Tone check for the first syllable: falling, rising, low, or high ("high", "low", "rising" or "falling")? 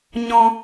high